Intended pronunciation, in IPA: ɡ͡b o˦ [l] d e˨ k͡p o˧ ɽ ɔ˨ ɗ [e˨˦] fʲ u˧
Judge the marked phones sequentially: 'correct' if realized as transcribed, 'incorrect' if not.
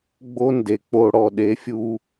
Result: incorrect: n, correct

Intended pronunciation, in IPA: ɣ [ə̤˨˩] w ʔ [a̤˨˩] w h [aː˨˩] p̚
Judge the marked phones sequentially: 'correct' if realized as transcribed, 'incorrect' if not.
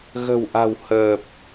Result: correct, correct, incorrect: əː˨˩

